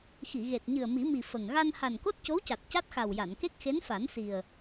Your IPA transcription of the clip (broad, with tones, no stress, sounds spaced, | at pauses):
x i˨˩˨ ɣ e˨˩ t̚ ɲ ɨ˨˩ ə̯ m i˨˩˦ m i˨˩ f ə˨˩ ŋ ɣ a˧ n h a˨˩ n k o˦˥ t̚ c o˧˥ w c a˨˩ t̚ c a˦˥ t̚ x a˨˩ w j a˨˩˨ n k e˦˥ k̚ x e˧˥ n f a˨˩˦ n s i˨˩ ə̯